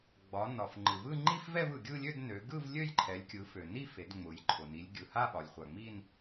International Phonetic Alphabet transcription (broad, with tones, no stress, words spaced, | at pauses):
ɡ͡bɒ˩˧nɒ˩f ŋ͡ǃɯ˩vɯ˥˧ŋ͡ǃi˥˧f vɛ˥˧vɯ˩ɡʲɯ˥˧lʲø˥˧d nø˩˧ɡɯ˥˧v lʲø˥˧jǃʰɛ˩˧lʲkʲɯ˩˧ fø˩ni˥˧fe˩˧d ŋ͡mʊ˩˧jǃʰʊ˩ ni˩˧lʲɡʲɯ˩ha˥˧ ɓɒ˩˧lʲχʷa˩ŋ͡mi˥˧n